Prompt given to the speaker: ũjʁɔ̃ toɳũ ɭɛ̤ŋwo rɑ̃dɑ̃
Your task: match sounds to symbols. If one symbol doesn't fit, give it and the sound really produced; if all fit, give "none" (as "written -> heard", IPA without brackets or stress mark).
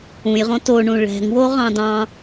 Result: r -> ʁ